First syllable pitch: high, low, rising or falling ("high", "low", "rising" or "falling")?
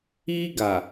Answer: high